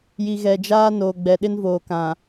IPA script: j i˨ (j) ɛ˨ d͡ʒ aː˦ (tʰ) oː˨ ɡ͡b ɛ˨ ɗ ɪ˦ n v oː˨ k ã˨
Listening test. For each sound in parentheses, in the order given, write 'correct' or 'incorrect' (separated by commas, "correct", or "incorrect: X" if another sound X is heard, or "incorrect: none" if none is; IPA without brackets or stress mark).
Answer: incorrect: ɣ, incorrect: n